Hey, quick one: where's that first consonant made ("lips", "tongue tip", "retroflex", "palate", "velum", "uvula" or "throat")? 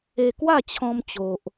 velum